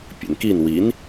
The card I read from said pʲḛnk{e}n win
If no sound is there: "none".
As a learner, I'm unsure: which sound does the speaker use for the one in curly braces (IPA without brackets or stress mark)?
i